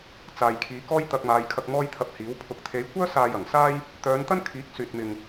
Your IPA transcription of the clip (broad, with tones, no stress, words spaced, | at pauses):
t͡saː˨jkʰiː˨˧ kɔː˥jt̪ɐ˧k̚maː˨˧jkʰɐ˧k̚ mɔː˥jt̪ʰɐ˧p̚hiː˨˥wpʰʊ˧k̚ t̪ʰe˨˧jkʷœː˥ saː˧jɐ˨˩ŋsaː˥j | t̪œː˨˧nt̪ɐ˥nkʰiː˨˥k̚ syː˧t̚mɪ˧ŋ